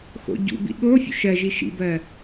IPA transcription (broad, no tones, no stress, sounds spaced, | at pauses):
x o̰ ɟ ṵ b ḭ ɠ o fʲ ṵ ʃ ɜ ʒ i ʃ ḭ b ɜ